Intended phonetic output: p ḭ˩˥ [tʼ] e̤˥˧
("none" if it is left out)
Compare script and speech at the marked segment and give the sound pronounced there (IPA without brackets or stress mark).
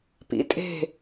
tʼ